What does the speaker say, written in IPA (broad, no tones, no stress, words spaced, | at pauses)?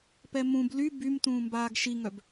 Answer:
pɛmũb ly bym tũːmbaːɡʃiŋœb